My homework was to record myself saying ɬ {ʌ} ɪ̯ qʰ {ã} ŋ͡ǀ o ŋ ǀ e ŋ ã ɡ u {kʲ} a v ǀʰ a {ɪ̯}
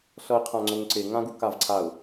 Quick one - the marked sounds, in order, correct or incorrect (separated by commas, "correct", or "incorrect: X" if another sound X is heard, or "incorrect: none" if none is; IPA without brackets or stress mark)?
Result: correct, correct, incorrect: k, incorrect: ʊ̯